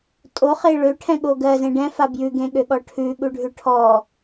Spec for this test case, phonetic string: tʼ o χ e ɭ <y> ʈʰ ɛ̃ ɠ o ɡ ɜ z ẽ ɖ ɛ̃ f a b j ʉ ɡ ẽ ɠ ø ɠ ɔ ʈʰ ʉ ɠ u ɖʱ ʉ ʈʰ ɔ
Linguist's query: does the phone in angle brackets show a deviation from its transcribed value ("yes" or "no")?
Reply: yes